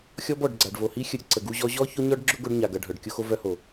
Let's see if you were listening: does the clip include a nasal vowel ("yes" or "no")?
no